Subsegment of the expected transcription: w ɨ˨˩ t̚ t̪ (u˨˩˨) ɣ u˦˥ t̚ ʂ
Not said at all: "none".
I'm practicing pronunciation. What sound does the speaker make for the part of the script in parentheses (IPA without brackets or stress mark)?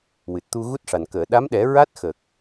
u˧